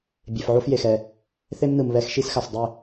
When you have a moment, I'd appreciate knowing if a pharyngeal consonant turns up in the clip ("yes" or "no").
yes